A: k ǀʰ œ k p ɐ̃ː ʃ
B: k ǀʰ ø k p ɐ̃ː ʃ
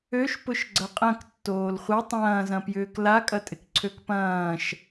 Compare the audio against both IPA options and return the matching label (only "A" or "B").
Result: B